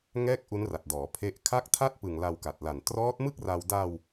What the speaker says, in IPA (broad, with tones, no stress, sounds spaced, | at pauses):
ŋ ɛː˥˩ k̚ ʔ u˦˥ n r a˨˩ t̚ d ɔː˩˦ pʰ e˦˥ ʔ kʰ a˥˩ k̚ tʰ a˥˩ t̚ p ɯ˨˩ ŋ l a˧ w k a˨˩ t̚ l a˨˩ n t r ɔː˦˥ t̚ m ɯ˥˩ k̚ r a˧ w d a˧ w